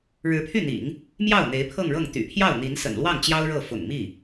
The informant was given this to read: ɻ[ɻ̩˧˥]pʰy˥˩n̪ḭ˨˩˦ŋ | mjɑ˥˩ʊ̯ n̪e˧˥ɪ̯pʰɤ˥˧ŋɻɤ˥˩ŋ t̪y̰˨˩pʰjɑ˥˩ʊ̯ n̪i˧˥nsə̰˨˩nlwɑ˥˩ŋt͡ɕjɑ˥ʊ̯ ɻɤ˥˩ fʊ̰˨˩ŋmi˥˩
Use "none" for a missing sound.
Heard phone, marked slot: ɻ̩˧˥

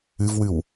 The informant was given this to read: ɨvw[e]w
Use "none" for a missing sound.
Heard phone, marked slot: ɨ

